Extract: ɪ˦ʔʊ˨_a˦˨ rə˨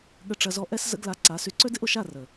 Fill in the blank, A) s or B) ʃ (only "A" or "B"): B